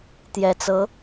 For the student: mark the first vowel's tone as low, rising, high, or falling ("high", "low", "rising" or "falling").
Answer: low